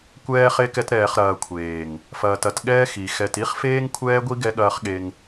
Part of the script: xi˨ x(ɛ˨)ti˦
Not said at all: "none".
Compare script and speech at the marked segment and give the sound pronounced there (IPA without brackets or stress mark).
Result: ɛ˨